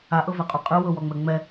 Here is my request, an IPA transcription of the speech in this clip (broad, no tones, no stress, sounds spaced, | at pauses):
a ʔ ɤ v ɛ qʼ u qʼ ɯ w ɤ w ɔ ŋ͡m ɛ ŋ͡m ɛ